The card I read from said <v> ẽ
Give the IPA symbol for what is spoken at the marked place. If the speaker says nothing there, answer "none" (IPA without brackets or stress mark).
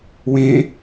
w